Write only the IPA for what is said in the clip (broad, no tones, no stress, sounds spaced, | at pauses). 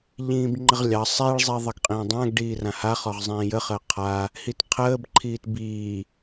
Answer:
ʎ ĩː b ŋ͡ǃ ə ʁ lʲ ɑ sˤ i ɭ zˤ i ðˤ ə ɡ qʼ ĩː dˤ ã ɡ ɖ iː r ã h a χ ɔ ʁ zˤ ĩː j ə χ əː qʰ a | h i t qʰ əː b ǃʰ iː t b iː